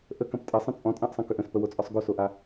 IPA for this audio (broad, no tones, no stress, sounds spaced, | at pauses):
ʔ ə k ɐ̃ p tʼ ɐ sˤ ə̃ t͡sʼ ɔ̃ tʼ ã ʔ sˤ ɐ̃ k ʏ ʔ ə̃ s p ə w o t͡sʼ ɔ sˤ ɡ o s o ʔ a